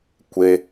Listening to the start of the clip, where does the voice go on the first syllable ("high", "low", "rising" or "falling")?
high